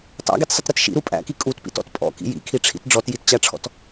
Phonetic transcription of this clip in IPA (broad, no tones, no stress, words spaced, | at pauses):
tˤæ̰ɡitsˤɪtɾɪt ʃḭɾu pʼæ̰ki kʼutpḭtɔ̰t pʼɔ̰kḭ jḭkʰiʈ͡ʂʰḭt ɖ͡ʐɔtjitt͡ɕæʈ͡ʂʰɔ̰t